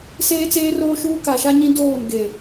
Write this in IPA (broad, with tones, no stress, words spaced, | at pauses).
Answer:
seː˦t͡seː˦roː˦ʃuː˦ ka˨ʃa˦ɲĩ˦ doː˦˨n ɡe˨